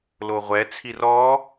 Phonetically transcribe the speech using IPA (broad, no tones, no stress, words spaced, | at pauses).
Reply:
loʁʷɛt͡sʰir ɔ